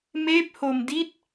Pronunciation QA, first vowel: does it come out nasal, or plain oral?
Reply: oral